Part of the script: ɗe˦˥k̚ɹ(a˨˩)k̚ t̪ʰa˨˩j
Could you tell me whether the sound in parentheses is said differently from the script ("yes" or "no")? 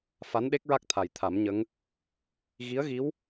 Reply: yes